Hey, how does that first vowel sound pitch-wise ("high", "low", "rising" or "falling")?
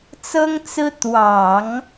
high